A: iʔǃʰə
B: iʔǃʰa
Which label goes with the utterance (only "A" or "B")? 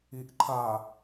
B